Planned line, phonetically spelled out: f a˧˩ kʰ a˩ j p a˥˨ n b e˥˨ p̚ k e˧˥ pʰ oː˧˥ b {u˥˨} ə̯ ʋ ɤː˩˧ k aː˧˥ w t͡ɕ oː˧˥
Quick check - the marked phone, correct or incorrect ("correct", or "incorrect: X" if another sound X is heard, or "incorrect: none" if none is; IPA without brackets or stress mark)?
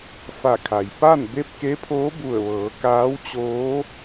incorrect: u˧˩